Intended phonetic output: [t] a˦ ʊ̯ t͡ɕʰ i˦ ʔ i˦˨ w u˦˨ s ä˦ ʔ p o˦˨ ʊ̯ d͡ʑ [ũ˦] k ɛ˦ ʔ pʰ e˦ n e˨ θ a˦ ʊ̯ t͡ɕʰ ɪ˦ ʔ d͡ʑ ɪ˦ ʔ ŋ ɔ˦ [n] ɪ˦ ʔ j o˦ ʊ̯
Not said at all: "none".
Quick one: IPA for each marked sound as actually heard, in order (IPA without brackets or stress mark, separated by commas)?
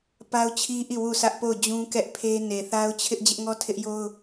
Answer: p, ũ˦, tʰ